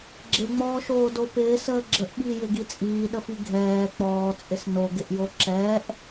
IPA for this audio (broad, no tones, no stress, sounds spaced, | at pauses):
ɡ͡ǁ ɪ ŋ͡m ɔː ʃ oː d o p ɪː s əː ɡ͡ǁ ə ʔ ɓ iː j ɪ ɡ i t͡sʼ iː ɗ ə f i ɡʱ ɛː k͡p ɔː t͡sʼ ɪ s n o ɡ ɪ ʔ j o ǁ ɛː ʔ